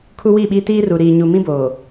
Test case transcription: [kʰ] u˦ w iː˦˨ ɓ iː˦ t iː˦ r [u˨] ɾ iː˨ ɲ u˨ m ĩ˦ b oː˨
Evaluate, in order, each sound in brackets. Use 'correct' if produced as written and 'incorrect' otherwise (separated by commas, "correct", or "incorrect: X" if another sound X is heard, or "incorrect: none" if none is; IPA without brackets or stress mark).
correct, correct